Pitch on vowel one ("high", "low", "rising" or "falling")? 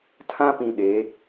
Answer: high